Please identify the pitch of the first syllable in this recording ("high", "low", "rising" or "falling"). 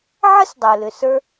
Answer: high